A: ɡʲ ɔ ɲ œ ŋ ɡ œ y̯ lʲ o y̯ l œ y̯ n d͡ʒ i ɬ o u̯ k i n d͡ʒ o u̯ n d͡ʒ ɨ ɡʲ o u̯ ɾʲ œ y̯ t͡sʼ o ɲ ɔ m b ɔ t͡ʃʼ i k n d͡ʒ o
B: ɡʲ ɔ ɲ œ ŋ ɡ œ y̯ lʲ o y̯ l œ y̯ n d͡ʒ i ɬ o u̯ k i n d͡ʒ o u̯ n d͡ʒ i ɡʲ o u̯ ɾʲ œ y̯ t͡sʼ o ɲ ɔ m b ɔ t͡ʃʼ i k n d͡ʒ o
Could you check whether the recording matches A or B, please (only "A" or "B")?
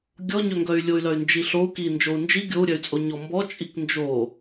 B